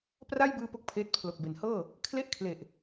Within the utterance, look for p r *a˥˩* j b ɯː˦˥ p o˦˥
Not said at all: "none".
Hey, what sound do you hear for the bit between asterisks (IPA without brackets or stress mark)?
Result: a˥˩